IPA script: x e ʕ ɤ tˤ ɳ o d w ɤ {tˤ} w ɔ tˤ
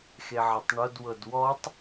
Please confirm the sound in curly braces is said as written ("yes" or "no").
no